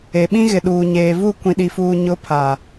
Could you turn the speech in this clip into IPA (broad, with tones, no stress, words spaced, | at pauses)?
e˨ɓĩ˦ɣɪ˨ ɗuː˨ ɲeː˨vu˦˨ kʷĩ˨ɗi˨fuː˨ ɲʊ˨˦pʰa˨